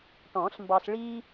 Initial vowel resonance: nasal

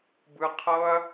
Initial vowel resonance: oral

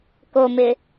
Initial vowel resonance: oral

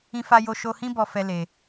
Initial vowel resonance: nasal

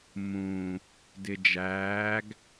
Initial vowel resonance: nasal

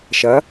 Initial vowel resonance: oral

